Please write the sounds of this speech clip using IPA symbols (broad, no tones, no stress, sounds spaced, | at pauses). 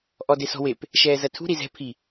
ʔ ɔ d e s ɔ̤ w e p | ʃ ɛː z ɐ tʰ ṳ ɾ i z ɛ̤ pʰ i